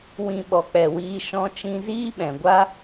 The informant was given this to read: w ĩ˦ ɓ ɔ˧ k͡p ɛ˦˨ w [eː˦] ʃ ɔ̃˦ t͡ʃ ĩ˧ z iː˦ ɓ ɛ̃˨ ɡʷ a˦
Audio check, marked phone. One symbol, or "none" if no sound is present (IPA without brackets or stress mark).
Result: iː˦